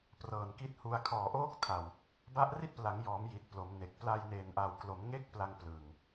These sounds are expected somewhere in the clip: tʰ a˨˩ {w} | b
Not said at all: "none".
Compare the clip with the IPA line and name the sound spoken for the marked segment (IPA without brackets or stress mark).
w